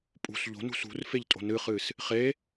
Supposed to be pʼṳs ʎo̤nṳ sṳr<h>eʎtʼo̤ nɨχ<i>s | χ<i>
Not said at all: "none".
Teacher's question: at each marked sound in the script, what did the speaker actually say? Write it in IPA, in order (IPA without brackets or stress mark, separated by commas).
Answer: f, ɨ, e